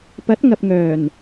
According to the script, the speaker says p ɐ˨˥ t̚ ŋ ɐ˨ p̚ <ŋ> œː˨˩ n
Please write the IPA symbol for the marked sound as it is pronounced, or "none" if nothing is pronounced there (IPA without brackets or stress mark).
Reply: ŋ